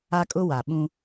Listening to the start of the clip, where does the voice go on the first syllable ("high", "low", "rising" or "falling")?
high